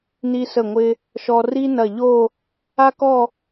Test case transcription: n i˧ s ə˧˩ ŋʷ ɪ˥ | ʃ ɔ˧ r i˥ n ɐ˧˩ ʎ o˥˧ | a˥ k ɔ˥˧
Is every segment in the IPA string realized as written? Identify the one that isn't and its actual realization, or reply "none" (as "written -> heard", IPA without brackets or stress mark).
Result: ɪ˥ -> ɪ˧